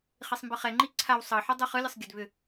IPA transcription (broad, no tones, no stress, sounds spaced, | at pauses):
χ i sˤ m b ɯ χ ɛ ŋ͡ǃ i ǀʰ a w sˤ ɤ ħ ɯ dˤ ɯ χ ɯ lʲ ə sˤ ɡʲ ə d β ʏ